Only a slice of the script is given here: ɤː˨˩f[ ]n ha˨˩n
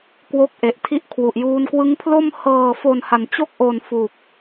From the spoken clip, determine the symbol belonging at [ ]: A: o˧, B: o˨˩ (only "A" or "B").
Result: B